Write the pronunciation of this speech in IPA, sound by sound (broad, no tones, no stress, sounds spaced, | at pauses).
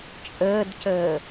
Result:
t͡ʃʼ əː d c əː